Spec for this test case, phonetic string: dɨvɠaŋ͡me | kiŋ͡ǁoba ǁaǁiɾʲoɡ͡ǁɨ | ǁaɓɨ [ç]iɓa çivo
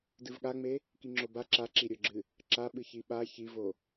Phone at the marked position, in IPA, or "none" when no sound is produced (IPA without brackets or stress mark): ç